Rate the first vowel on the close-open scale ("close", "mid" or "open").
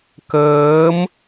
mid